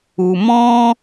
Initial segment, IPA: u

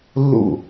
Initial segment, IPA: lː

